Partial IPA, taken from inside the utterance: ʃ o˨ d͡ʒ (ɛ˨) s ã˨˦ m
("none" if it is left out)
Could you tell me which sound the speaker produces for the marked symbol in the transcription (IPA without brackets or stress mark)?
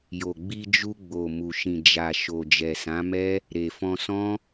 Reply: ɛ˨